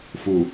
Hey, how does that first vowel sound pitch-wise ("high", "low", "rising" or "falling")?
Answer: low